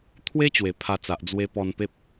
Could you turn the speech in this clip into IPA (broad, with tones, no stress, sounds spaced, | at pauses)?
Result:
t̪ʰ w e˦ t͡ɕ w e˨˩ pʰ a˧ t͡s a˨ ʔ d͡z w e˧ p ɔ˧ n p e˦ p̚